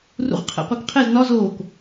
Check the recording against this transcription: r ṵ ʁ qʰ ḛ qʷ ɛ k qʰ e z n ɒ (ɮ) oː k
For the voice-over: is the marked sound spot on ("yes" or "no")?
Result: no